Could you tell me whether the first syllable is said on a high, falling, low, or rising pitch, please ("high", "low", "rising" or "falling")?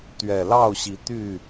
low